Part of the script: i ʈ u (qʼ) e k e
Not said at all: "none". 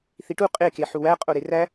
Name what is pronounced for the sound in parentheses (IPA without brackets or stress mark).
qʼ